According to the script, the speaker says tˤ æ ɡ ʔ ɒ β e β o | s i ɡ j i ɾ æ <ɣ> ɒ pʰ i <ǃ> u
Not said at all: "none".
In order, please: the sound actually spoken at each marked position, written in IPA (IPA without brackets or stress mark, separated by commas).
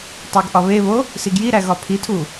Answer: ɣ, tʰ